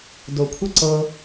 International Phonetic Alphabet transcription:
d o kʷʰ ɛ ǀ ɤ

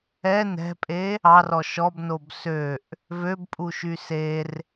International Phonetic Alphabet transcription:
ɛ n ɛ̤ pʼ e | ɑ r ɔ ʃ ɔ b n o b s ø ʔ | v ø b pʼ u ʃ y s e r

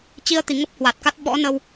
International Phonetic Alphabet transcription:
t͡ɕ i˧ ə̯ t̪ i˨˩ ŋ ə˦˥ p̚ h w a˨˩ t̚ k a˦˥ t̚ ɓ ɔ̰˧˥ n ə˧ w

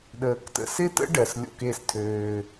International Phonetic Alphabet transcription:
ɗ əː˧ k t ə̰˦ s ɪː˦ t ə̰˦ ɖ ɜ˨ s lʲ o̰˧ k e˦˨ s tʰ øː˧

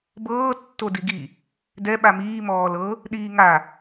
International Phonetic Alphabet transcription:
b ɤː tː o d i ɡ i | d ɛ ɓ a m iː m ɔː l ɤ | ɗ iː ŋ a

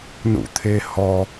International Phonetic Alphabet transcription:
n ṵ t̪ʰ e h ɔ

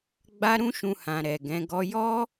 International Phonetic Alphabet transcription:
ɡ͡b a˦ ɾ ũ˦ ʃ ũ˧ h ã˨ ɾ ɛ˨ ɡ ɛ̃˨˦ ɡ ɔ˦ j ɔ˦

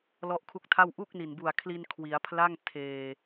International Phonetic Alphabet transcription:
l ɔ˦˥ ʔ kʰ u˦˥ k̚ tʰ a˥˩ w ʔ u˥˩ k̚ n i˨˩ n b u˨˩ a̯ kʰ l i˧ n kʰ w i˩˦ a̯ pʰ l a˥˩ ŋ tʰ eː˨˩

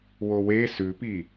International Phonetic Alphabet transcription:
w o w e s ʉ p i

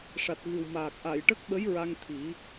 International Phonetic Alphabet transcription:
ʂ a˨˩ t̚ ɣ ɨ˨˩ w m aː˨˩ k̚ ʔ a˨˩˨ j ʈ ə˦˥ k̚ ɓ ə˧˥ j ɹ a˧ ŋ t̪ʰ i˨˩˦

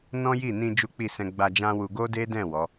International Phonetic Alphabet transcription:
n ɔ̃˦ j i˦˨ n ĩ˧ d͡ʒ u˦ k͡p i˦˨ s ɛ̃˧ ɡ͡b a˧ d͡ʒ ã˦ w u˧ ɡ o˦ d e˦ d ɛ̃˦˨ w ɔ˨˦

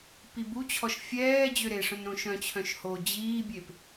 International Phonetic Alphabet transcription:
p i b u t͡ɕʰ ɔ ʃ fʲ ɛː d͡ʑ ø ɾ e ʂ œ̃ n ɾ õ ʃ œ̃ t͡ɕʰ œ̃ ʃ h o d͡ʑ iː bʲ e p

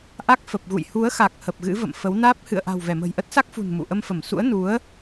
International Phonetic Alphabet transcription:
ʔ a˦˥ k̚ f ə˨˩ p̚ ɣ ṵ˧˨ j h u˨˦ ə̯ x a˨˩ k̚ h ə˨˩ p̚ ɣ ɨ̰˧˥ v ə̰˧˨ m f ə˨˦ w n aː˦˥ p̚ h ɨ̰˧˨ ə̯ ʔ a̤˨˩ w v ɛ˧˩ m ə̤˨˩ j ʔ ə˦˥ t̚ s a˦˥ k̚ f ṳ˨˩ n m ṵ˧˨ ʔ ə˧ m f ə˧˩ m s ṵ˧˥ ə̯ n u˨˦ ə̯

